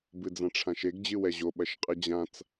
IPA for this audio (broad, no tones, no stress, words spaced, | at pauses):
bɨd͡zãʈ͡ʂʰãʃeɡ d͡ʑɨwɛʑo ɓɐʃqʼɨd͡ʑãt͡s